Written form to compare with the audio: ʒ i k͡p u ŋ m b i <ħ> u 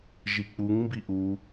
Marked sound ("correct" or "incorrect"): incorrect